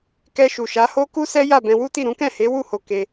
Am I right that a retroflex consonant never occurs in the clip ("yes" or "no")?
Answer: yes